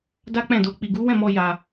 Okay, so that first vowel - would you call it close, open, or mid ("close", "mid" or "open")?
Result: open